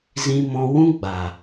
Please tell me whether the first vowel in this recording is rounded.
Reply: no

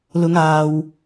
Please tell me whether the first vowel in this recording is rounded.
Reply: yes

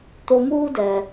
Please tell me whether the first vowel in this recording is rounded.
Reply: yes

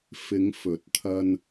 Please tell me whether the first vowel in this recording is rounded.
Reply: no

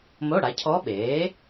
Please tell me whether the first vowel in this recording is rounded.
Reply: yes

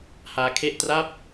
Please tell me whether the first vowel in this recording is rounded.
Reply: no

